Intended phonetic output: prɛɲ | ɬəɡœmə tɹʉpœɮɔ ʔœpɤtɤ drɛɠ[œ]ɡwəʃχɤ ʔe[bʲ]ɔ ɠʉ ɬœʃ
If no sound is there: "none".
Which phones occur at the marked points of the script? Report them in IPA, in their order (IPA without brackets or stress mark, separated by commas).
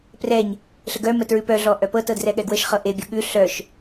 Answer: ɛ, bʲ